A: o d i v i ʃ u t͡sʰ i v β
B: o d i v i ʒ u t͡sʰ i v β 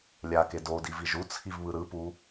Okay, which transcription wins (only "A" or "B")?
B